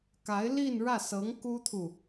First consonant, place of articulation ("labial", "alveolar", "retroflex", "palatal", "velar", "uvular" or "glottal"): velar